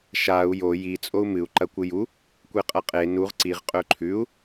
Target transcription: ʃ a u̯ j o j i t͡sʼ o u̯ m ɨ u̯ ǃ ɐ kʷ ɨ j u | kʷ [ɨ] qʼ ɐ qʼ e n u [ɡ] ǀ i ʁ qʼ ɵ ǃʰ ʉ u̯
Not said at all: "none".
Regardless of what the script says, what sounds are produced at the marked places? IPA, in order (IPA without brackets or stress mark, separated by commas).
e, ʁ